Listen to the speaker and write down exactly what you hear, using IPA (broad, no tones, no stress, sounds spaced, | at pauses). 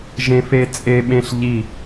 ʒ ẽ f e t͡sʼ e ɓ ẽ ɬ ʎ i